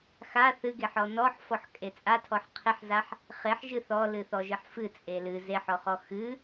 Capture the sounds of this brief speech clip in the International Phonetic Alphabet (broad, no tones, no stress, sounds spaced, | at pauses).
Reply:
x a θ ɨ ɡ e ħ ɔ n ɔ ħ f ɔ ħ kʼ e t͡sʼ a tʰ ɔ ħ qʰ e ħ z a ħ | χ e ħ ʒ ɨ θ ɔ l ɨ θ ɔ ʒ ɨ ħ f ɨ t͡sʼ e l ɨ z e ħ ɔ χ ɔ x ɨ